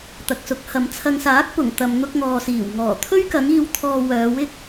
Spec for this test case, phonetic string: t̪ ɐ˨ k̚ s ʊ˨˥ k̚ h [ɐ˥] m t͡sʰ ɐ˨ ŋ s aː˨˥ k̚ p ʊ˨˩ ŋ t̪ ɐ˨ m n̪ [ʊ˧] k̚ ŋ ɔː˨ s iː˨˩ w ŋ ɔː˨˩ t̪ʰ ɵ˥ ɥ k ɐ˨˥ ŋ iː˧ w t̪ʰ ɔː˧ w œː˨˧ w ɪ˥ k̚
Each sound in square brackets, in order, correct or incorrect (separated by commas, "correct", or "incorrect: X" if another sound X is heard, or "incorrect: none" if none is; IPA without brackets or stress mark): incorrect: ɐ˨˧, correct